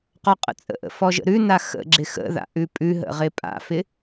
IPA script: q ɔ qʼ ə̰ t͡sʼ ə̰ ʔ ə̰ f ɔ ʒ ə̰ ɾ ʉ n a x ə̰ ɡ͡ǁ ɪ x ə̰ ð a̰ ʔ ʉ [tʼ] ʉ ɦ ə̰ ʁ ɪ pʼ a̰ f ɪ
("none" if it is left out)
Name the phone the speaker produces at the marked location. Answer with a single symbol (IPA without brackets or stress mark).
pʼ